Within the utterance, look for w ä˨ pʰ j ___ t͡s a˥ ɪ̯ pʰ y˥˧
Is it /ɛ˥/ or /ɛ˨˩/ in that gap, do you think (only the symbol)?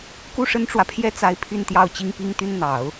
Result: ɛ˥